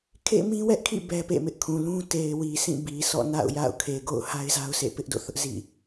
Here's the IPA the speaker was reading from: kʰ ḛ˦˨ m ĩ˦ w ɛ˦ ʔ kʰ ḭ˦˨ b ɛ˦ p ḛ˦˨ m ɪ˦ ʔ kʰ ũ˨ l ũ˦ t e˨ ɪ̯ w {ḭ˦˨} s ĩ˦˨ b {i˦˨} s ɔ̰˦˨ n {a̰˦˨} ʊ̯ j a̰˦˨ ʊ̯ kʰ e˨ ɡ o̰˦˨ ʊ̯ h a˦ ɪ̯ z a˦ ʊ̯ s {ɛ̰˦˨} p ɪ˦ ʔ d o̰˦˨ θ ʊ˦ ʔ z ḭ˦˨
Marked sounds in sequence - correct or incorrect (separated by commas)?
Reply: incorrect, incorrect, correct, incorrect